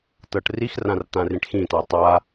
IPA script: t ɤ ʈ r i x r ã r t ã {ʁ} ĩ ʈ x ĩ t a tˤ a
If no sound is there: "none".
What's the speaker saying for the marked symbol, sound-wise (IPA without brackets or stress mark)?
r